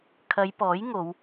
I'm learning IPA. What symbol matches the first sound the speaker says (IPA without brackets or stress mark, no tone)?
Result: kʰ